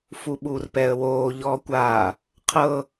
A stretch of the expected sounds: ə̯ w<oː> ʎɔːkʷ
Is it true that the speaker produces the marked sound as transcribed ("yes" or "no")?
yes